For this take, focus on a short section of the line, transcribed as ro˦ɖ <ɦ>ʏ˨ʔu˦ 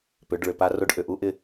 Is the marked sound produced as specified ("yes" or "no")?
no